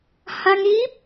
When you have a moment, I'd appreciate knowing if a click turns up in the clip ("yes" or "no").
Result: no